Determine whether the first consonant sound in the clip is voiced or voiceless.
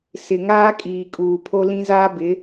voiceless